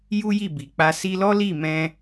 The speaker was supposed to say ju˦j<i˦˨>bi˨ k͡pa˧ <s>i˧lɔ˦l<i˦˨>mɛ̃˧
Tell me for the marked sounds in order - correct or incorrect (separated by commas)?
correct, correct, correct